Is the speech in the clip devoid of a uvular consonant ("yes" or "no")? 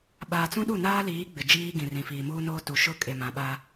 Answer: yes